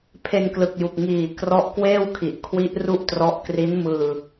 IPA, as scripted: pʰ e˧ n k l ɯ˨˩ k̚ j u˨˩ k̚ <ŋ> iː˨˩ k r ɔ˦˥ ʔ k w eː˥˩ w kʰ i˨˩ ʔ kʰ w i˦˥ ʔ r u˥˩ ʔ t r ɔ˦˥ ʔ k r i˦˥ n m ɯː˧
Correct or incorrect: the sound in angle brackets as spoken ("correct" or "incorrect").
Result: correct